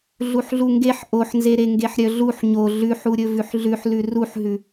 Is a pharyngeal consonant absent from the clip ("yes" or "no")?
no